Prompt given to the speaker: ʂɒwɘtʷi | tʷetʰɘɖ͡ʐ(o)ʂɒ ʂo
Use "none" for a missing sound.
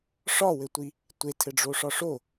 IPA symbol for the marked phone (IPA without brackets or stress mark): o